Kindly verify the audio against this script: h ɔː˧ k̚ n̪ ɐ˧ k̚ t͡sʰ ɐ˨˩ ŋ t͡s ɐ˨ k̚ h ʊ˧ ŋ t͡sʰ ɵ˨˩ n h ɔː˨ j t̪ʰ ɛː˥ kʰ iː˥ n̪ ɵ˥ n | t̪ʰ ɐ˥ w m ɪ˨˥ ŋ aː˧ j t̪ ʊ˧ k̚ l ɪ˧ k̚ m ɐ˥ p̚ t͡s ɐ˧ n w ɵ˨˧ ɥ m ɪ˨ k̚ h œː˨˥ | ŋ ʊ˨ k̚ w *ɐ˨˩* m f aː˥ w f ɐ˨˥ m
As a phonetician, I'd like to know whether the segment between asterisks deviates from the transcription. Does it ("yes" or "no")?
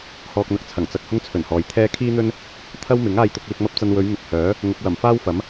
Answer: no